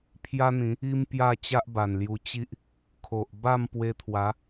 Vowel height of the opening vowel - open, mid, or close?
open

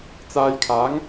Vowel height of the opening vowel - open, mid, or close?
open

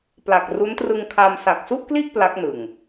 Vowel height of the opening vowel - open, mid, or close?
open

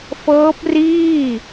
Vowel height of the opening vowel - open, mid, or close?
mid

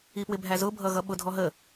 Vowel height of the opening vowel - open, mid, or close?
close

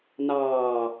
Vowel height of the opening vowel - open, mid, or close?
open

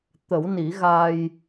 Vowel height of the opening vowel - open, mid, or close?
mid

